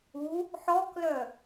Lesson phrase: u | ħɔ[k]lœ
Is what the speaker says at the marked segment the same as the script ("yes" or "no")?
yes